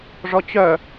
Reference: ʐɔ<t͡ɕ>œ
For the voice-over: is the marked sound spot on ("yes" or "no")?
yes